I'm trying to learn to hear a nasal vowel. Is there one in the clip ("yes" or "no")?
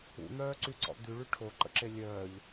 no